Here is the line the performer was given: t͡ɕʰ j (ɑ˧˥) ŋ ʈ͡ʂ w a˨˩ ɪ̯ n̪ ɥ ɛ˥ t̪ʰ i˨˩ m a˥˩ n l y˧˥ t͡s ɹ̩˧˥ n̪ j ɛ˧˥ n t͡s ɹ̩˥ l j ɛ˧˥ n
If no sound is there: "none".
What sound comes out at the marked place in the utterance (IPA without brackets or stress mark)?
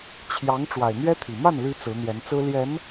ɑ˧˥